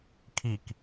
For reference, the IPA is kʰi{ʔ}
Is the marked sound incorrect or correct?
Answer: incorrect: k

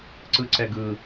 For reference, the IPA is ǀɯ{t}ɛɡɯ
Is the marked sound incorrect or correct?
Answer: incorrect: ǀ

